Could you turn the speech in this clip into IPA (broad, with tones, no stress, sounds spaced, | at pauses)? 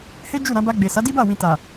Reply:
h e˦ d͡ʒ u˦˨ ɾ ã˧ b a˧ ɡ͡b e˨ s a˨˦ d i˦ b a˦˨ w ĩ˨ t a˨